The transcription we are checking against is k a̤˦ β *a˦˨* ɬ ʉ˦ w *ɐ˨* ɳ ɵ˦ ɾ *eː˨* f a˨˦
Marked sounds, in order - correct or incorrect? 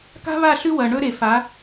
correct, correct, incorrect: e˨

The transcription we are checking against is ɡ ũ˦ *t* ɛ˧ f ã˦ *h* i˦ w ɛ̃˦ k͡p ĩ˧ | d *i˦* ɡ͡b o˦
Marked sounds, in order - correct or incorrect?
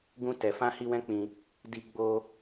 correct, correct, correct

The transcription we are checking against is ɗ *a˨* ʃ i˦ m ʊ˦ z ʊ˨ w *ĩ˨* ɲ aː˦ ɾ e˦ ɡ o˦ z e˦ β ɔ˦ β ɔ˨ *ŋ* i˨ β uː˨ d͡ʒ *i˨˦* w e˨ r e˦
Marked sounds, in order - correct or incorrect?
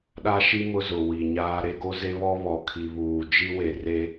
incorrect: a˦, incorrect: i˨, incorrect: kʰ, incorrect: i˦

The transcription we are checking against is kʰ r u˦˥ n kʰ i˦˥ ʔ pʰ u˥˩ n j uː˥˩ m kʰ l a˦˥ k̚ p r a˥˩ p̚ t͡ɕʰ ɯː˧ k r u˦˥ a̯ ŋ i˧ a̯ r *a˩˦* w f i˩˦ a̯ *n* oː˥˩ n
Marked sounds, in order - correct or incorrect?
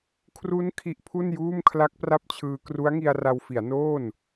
incorrect: a˧, correct

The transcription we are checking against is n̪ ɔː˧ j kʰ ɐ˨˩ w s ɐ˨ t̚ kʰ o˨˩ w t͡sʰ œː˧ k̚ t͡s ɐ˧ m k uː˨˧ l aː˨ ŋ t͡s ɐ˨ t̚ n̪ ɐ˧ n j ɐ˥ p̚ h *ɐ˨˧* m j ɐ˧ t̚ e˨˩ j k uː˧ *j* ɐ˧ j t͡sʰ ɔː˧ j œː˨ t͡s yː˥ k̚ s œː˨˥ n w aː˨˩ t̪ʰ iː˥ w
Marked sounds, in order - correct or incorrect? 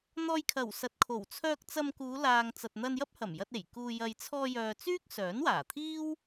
incorrect: ɐ˨˩, correct

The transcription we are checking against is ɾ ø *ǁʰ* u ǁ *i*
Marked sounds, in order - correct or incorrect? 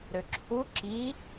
correct, correct

